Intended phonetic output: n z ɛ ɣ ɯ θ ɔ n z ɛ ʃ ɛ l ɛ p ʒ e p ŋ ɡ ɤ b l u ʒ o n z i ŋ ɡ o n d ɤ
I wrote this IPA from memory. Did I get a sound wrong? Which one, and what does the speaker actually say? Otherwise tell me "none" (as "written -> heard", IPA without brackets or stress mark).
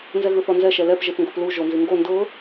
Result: b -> p